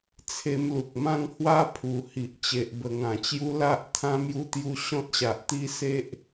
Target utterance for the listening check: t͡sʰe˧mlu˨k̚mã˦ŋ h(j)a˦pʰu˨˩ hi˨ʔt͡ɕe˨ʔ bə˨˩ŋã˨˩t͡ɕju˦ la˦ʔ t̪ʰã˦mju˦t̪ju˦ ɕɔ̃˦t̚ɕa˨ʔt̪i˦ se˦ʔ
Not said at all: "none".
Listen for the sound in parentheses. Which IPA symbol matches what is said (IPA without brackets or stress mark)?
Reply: w